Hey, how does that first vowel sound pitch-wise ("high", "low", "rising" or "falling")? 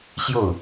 falling